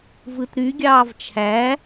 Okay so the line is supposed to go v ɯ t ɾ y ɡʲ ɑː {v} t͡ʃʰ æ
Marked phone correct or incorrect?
correct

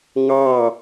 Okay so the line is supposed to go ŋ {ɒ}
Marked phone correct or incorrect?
incorrect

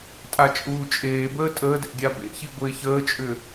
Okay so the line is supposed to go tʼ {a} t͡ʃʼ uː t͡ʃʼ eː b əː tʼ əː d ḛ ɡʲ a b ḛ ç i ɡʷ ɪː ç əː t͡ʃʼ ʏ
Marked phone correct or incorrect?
correct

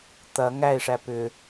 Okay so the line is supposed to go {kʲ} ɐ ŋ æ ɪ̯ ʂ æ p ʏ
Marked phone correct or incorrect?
incorrect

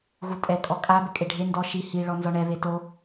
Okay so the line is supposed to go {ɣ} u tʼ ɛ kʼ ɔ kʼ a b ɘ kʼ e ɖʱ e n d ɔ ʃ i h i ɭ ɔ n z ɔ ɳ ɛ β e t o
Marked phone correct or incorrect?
correct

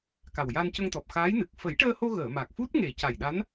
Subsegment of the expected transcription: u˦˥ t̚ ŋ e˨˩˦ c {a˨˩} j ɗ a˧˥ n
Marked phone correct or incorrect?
correct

